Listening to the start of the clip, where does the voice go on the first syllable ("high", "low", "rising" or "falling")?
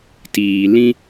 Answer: low